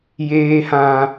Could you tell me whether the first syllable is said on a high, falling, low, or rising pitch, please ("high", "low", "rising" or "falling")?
low